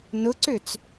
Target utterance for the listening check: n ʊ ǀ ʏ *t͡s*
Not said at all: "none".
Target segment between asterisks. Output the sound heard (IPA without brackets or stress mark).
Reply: t͡s